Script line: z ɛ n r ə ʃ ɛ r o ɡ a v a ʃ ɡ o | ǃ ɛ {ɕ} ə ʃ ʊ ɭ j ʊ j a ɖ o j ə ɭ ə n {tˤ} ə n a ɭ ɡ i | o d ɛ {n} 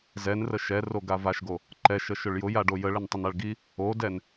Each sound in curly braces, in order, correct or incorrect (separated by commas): incorrect, correct, correct